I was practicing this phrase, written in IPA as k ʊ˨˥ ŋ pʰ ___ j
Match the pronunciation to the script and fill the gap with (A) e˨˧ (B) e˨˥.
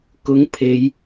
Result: A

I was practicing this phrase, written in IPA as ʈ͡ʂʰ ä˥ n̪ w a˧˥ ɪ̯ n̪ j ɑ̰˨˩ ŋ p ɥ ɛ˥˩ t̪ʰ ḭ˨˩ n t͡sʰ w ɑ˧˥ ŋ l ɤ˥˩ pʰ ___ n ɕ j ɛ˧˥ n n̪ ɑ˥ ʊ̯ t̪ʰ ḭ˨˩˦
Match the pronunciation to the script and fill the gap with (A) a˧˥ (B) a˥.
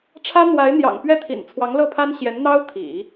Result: B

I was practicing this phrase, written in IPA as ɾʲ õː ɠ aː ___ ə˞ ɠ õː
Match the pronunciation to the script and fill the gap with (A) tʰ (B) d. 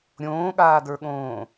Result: B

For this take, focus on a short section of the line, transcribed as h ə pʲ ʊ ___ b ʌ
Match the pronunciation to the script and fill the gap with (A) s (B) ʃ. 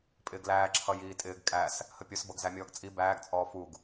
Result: A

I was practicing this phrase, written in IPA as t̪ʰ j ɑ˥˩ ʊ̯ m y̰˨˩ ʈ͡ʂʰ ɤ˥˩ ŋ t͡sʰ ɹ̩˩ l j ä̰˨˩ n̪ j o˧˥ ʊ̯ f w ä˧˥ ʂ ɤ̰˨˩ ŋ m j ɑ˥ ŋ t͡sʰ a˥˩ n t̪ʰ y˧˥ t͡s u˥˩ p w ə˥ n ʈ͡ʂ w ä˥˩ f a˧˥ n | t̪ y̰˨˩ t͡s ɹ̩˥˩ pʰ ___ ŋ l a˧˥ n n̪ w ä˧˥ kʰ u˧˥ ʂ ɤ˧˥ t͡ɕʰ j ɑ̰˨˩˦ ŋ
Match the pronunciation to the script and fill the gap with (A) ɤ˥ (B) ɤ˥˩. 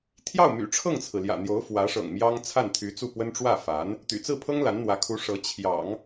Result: A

